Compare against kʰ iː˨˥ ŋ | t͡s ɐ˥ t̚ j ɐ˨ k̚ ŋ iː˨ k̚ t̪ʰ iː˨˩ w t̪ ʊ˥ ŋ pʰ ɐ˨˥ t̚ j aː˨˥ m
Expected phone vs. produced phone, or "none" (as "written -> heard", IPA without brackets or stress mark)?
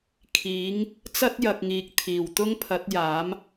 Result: none